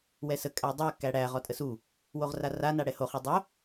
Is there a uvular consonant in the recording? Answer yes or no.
yes